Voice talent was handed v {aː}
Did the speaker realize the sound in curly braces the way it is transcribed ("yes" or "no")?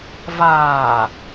yes